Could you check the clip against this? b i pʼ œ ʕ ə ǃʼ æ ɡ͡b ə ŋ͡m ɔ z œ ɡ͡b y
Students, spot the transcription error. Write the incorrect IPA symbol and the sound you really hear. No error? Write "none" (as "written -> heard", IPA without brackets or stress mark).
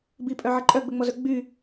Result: æ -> œ